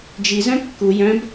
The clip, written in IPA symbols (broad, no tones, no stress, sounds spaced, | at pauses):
d͡ʒ i z œ̃ kː u j œ̃ b